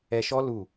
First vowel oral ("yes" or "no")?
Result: yes